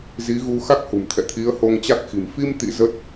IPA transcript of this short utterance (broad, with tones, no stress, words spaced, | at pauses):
zi˨˦ɣu˧ xa˦˥k̚hṳ˨˩mt̪ʰɛ̰˧˨t̪ʰi˨˦ə̯ ho˧ŋt͡ɕa˦˥k̚xi̤˨˩m fi˧mt̪ḭ˧˨ zə˦˥t̚